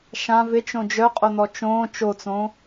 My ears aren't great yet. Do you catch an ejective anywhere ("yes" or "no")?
yes